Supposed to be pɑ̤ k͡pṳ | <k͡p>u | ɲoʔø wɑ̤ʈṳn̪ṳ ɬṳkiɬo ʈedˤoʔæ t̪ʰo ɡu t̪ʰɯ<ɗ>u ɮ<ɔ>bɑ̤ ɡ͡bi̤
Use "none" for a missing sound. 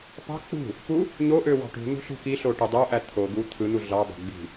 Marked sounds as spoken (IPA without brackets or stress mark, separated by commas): p, n̪, ɑ